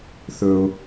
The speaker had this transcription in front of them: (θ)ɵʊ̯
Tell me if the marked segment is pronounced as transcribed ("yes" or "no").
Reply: yes